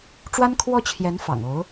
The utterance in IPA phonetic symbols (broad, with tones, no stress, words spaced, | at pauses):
ʈ͡ʂwa˥nkʰwɔ˥˩t͡ɕʰjɛ˧˥n fɑ̰˨˩ŋo˧˥ʊ̯